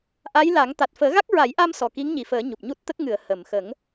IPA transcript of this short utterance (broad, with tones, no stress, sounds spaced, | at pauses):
ʔ a˧˥ j l a˨˩˦ ŋ t̪ a˨˩ t̚ f əː˨˩˦ ɣ a˦˥ k̚ ɹ a˨˩˦ j ʔ a˧ m s ɔ˨˩ k i˧˥ ŋ ɲ i˨˩˨ f əː˨˩˦ ɲ u˨˩ p̚ ɲ u˦˥ t̚ t̪ ə˦˥ k̚ ŋ ɨ˨˩˨ ə̯ h ə˨˩˨ m x ə˨˩˦ ŋ